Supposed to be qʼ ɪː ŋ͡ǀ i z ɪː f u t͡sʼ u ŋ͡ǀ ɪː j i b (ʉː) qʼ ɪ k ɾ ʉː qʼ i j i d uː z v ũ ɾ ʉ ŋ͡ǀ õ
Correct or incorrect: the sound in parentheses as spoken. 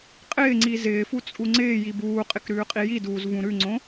incorrect: uː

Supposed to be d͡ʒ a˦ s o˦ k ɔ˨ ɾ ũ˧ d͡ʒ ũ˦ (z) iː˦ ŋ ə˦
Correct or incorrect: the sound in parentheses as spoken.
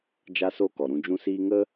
incorrect: s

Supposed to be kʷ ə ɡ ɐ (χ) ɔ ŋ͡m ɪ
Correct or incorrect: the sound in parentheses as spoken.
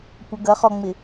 correct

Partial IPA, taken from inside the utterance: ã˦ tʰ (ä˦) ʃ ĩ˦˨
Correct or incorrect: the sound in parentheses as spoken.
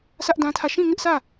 incorrect: ä˦˨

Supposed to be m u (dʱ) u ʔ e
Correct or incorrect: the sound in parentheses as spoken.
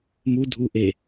correct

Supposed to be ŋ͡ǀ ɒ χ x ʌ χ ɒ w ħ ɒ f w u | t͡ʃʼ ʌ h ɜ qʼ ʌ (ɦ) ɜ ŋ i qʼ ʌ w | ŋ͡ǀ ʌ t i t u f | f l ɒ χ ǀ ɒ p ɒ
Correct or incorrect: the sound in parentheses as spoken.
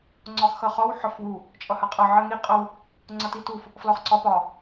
incorrect: ʕ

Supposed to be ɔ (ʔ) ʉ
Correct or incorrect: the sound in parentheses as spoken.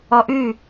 correct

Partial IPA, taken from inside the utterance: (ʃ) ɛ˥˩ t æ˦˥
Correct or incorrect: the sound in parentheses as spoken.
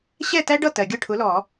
incorrect: ɕ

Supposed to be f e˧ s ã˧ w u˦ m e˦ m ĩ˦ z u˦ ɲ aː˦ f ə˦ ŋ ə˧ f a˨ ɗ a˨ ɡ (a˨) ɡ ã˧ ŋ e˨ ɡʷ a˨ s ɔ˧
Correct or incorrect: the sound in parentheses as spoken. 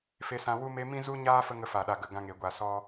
incorrect: ə˨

